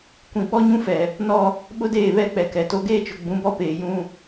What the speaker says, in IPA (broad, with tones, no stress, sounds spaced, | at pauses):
kʷ ĩ˨ ɓ ɔ˦ ɲ ũ˦ f ɛ˨ | n ɔ˦ | ɓ ʊ˦ d eː˦˨ β ɛ˦˨ k͡p ɛ˨ k ɛ˨ t o˦ ɡ eː˦ t͡ʃ ʊ˨ ɡ͡b ũ˨˦ b ɔ˦ p eː˨ j ũ˦